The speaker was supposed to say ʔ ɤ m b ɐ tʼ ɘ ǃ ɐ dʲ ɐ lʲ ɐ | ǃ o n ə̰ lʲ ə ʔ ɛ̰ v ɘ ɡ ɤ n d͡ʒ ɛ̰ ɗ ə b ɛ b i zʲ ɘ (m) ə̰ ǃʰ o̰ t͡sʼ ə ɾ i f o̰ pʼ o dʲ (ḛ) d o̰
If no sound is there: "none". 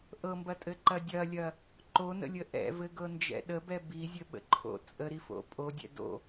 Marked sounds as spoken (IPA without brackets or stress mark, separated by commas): ɓ, ɛ̰